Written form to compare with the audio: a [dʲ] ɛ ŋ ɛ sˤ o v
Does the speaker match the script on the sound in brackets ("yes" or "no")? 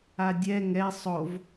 yes